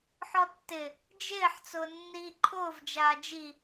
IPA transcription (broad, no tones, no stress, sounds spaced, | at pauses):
ħ ɔ tː ɪ | d͡ʒ ɪː ħ t͡s ʊː nː iː ǃʰ ʊː v d͡ʒ aː d͡ʒ i